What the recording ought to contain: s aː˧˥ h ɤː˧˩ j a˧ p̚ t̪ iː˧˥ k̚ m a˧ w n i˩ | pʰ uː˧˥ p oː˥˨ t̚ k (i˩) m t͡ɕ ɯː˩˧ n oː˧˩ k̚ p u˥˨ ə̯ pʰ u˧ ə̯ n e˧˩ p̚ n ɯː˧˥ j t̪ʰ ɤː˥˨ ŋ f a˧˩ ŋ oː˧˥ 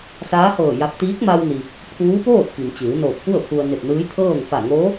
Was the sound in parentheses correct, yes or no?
yes